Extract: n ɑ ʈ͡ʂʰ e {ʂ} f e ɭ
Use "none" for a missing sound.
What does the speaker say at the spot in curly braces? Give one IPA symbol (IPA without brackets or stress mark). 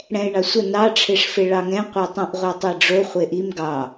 ʂ